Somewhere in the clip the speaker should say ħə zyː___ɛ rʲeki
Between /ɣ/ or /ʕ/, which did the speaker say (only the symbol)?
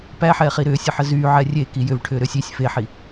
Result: ʕ